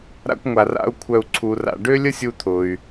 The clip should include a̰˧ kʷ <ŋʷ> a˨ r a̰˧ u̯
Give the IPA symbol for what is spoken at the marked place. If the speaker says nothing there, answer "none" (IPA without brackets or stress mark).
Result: ŋʷ